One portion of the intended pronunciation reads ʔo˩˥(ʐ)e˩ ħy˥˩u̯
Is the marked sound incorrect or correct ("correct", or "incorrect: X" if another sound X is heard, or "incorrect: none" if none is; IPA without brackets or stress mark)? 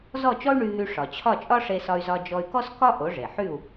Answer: correct